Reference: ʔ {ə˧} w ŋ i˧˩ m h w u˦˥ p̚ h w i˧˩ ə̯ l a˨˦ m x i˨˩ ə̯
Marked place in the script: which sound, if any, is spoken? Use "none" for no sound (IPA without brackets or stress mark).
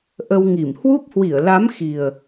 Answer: ə˧